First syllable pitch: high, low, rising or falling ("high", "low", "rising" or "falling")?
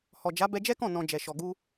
low